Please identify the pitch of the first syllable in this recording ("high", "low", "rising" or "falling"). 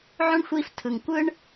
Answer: high